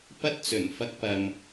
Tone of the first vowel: high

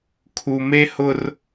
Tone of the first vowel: low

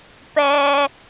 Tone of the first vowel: low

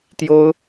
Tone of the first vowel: high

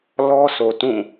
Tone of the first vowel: high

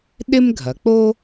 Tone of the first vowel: high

